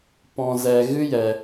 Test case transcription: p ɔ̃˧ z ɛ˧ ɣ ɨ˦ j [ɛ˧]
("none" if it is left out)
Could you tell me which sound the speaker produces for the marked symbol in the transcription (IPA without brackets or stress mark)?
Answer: ɛ˧